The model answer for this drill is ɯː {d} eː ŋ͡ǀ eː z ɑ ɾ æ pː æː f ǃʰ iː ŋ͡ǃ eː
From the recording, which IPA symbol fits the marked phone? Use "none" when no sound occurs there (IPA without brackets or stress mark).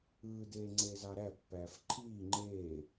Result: d